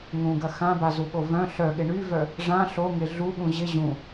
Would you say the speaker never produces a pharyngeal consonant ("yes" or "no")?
yes